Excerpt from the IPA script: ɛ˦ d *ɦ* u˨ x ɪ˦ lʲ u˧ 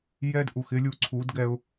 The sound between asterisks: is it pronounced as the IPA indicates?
no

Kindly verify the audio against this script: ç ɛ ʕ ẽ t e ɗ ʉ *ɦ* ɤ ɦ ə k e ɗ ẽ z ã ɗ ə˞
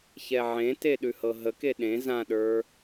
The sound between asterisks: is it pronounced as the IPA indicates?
no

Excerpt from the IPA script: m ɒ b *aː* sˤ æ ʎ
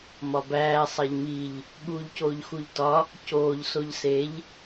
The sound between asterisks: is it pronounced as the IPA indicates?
no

